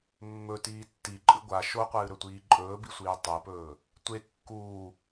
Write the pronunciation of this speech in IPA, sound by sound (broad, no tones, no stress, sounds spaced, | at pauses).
mː ɵ t iː tː i ǃʼ ɨ ɡʷ a ʃ o qʷ ɨː ɾ ɵ tʷ iː ǃʼ ɵː b i sʷ iː tˤ e p ɵː | tʷ e kː uː